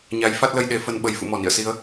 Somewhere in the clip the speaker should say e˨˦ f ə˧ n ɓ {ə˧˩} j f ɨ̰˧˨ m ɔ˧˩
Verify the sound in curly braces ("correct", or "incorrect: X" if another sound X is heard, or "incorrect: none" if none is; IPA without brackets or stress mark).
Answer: correct